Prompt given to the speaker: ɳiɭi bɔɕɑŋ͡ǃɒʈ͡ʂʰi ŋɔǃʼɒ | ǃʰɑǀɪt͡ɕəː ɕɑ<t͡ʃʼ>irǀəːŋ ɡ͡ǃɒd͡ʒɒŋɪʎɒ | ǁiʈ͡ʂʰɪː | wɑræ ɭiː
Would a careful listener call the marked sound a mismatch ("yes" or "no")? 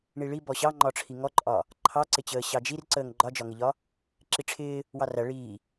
yes